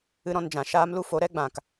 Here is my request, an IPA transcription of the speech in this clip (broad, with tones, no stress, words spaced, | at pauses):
ɨ˦ɾɔ̃˧nd͡ʒã˨ ʃaː˦mlu˦fo˨˦ ɾɛ˦ɡ͡bã˨k